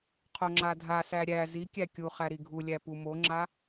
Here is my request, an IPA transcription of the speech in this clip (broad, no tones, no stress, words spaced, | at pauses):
qʰoŋ͡ǁadʱasæ ɾʲæ zikʲæ kʲuχæ ɾiɡʱulʲæ pumoŋ͡ǁa